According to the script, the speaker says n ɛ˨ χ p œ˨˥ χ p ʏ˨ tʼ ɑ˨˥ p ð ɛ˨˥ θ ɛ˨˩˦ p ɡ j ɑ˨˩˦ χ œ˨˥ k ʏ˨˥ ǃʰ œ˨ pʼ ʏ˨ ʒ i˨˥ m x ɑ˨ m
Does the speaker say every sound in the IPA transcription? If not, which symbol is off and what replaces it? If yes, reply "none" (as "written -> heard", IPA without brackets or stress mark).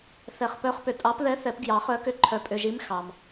n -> θ